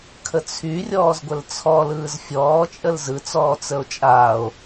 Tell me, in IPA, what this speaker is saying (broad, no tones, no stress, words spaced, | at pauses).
kʰət͡sʰyrʲɔːz ɡʷəlt͡sʰɔ lɯːzfʲɔːt͡ʃʼəl zɯt͡sɔː t͡səo̯t͡ʃʼaːo̯